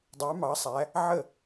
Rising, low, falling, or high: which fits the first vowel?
rising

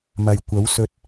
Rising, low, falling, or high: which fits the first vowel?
low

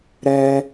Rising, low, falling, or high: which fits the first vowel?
high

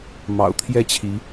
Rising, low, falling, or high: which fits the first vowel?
low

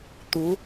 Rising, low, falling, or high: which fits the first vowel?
rising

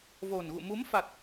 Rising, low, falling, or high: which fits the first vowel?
low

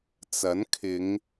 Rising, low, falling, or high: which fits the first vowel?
rising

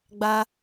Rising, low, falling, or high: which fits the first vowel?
high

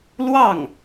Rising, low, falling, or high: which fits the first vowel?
falling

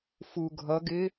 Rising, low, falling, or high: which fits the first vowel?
low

